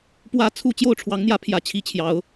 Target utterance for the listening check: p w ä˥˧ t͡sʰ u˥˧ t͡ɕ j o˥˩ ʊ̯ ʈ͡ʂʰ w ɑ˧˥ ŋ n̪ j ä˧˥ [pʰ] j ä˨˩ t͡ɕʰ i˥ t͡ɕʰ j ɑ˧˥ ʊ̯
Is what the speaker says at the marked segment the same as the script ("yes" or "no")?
yes